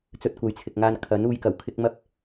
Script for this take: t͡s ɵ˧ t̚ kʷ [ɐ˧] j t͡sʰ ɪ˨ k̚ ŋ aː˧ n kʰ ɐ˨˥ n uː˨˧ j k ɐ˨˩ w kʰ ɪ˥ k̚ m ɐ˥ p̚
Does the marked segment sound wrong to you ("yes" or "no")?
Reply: yes